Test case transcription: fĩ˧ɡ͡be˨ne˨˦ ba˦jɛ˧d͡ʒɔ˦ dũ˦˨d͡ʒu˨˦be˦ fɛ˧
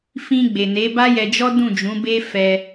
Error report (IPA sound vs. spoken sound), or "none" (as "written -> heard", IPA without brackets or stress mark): u˨˦ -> ũ˨˦